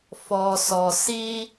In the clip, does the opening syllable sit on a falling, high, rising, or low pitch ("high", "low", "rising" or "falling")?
low